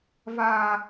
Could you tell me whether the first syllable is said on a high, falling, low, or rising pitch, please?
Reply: high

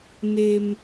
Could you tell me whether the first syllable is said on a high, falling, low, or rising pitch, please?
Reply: high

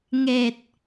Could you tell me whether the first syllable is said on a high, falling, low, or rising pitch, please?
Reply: low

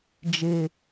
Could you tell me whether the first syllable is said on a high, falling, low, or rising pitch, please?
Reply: high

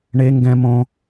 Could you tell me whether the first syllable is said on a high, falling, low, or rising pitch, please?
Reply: high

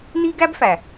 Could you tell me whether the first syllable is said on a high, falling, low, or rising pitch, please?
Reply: high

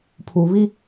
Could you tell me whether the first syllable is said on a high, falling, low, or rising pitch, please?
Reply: low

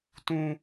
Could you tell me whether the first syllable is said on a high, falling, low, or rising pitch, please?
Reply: high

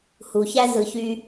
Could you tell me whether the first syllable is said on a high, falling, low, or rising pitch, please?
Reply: low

